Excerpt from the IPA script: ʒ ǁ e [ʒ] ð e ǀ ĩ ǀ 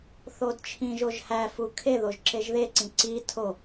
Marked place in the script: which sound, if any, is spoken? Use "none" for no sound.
ʒ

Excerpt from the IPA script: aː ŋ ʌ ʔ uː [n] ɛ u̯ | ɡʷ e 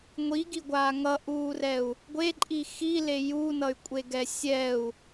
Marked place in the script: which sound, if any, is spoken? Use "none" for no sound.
r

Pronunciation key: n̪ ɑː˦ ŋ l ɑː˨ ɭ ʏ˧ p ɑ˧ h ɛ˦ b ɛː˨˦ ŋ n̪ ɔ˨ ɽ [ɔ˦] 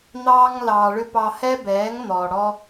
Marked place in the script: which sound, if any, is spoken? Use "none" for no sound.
ɔ˦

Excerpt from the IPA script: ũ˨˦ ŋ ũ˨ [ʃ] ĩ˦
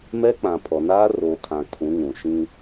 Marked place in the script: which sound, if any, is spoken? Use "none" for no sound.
ʃ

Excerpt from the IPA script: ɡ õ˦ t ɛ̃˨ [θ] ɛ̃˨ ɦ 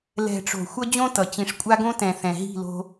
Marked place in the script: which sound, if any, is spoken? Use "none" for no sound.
θ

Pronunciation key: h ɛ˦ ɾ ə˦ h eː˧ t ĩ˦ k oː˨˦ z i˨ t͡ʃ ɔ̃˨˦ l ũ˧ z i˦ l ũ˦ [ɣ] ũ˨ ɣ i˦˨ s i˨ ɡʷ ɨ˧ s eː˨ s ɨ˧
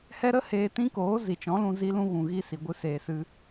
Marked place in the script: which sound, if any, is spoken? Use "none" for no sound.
ɣ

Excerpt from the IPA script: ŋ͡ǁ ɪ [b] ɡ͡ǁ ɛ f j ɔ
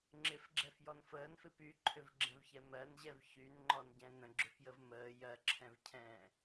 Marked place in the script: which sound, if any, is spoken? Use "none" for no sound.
f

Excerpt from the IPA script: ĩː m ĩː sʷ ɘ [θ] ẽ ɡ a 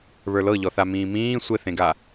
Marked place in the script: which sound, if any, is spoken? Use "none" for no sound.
θ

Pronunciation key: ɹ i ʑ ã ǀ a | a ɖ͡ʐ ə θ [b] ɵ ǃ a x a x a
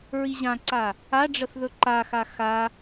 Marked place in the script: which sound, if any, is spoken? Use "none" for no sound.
ð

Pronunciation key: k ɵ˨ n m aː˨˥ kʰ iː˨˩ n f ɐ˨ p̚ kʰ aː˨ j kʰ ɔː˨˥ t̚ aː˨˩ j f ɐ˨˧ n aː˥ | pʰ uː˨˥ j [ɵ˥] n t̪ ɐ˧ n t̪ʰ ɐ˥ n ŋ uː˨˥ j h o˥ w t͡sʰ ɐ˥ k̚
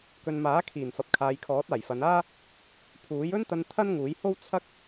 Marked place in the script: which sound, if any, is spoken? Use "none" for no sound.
ɵ˥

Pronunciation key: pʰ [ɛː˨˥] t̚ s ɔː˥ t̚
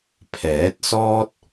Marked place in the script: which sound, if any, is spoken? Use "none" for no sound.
ɛː˨˥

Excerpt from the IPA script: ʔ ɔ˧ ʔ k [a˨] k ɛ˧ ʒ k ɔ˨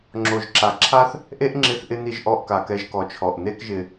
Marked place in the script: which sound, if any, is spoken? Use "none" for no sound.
a˨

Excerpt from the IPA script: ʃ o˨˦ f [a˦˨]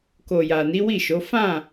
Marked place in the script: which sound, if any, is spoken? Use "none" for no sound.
ã˦˨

